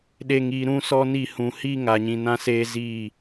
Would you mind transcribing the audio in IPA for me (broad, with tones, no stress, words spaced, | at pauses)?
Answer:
ɗe˨ŋi˨ ɾũ˦sɔ˦ni˦˨ hũ˨hi˦ ŋa˨ɲĩ˨nã˦ seː˦ziː˦˨